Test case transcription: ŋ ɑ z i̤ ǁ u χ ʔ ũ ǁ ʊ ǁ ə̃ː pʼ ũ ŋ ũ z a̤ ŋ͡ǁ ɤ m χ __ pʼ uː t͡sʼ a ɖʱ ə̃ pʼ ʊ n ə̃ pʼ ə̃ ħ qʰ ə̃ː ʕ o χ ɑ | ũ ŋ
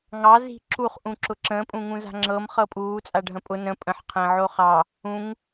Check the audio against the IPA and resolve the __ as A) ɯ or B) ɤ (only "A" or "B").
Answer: B